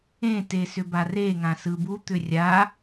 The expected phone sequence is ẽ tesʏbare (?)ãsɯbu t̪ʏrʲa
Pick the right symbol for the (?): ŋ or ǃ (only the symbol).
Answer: ŋ